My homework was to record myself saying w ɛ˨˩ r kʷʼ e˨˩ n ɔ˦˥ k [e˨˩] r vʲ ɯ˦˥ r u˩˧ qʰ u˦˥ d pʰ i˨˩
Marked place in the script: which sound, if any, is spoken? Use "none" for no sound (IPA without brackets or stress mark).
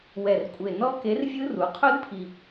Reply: e˨˥